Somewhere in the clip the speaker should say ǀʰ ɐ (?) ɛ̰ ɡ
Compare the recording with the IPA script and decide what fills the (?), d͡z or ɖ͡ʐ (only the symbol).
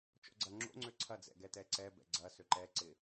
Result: d͡z